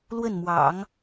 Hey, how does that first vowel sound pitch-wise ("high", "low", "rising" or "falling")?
falling